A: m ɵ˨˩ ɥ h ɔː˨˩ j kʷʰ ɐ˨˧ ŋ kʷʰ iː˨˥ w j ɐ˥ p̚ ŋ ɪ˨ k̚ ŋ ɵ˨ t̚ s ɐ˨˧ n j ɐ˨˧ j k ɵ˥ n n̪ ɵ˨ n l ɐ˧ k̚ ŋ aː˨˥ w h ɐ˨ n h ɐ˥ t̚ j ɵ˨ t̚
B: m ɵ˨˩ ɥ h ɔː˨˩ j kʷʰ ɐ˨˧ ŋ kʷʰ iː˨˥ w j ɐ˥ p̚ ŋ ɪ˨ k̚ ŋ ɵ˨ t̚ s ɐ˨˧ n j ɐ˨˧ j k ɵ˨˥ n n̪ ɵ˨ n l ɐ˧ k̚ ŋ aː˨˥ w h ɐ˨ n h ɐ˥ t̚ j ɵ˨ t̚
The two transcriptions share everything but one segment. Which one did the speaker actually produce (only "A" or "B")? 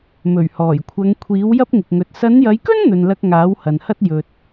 A